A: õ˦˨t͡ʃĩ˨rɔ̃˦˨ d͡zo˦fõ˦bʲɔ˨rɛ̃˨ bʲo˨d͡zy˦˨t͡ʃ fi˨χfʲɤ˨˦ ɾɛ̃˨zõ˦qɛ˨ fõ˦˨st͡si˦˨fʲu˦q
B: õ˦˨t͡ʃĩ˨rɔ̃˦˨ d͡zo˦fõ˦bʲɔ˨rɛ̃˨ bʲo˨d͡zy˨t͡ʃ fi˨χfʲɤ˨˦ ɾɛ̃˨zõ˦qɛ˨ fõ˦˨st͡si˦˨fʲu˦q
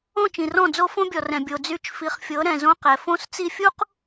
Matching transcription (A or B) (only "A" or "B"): A